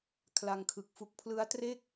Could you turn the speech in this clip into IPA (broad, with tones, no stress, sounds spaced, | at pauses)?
kʰ l a˧ ŋ kʰ ɯ˨˩ k̚ f u˨˩ k̚ pʰ l ɯ˦˥ a̯ t r e˥˩ k̚